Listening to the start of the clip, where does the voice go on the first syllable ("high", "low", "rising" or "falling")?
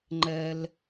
low